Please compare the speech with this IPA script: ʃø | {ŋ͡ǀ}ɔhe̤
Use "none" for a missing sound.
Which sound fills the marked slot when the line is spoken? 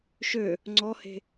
ŋ͡ǀ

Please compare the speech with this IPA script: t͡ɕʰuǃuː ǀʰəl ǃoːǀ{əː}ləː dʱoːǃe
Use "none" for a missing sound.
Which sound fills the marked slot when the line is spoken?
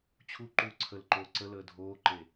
ə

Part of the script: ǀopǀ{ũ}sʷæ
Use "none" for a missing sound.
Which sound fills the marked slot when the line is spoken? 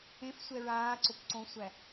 õ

